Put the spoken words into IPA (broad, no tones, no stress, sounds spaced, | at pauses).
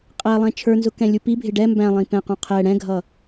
qʼ æ lˠ ɛ̃ t͡ʃʰ ə˞ n z ʊ k ɛ̃ lʲ u p i bʱ ɪ ɖ ɛ m b æ̃ lˠ ĩ p ɛ̃ q ũ qʰ ɛ ɽ ɛ̃ ɡʱ ʌ